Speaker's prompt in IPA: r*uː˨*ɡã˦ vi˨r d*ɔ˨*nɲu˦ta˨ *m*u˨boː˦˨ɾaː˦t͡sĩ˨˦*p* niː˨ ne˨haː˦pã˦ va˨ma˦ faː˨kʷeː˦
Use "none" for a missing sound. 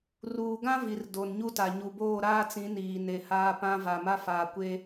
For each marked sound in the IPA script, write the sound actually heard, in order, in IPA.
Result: uː˨, o˨, ɲ, none

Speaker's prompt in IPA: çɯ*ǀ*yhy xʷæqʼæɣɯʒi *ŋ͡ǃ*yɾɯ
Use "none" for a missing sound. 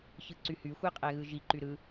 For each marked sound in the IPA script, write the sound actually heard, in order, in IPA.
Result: ǀ, ǃ

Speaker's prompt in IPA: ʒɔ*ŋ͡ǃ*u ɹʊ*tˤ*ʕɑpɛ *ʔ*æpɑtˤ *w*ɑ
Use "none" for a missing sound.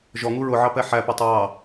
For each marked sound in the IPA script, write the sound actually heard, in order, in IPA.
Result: ŋ, none, ħ, ɹ

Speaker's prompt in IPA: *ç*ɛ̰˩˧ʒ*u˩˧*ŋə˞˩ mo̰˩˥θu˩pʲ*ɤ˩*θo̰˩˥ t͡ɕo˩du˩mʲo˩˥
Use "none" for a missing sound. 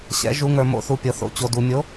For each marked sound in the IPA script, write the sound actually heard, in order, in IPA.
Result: ɕ, u˩˧, ɤ˩

